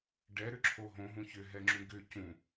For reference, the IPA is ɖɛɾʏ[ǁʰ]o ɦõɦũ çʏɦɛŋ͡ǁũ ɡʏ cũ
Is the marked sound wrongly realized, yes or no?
no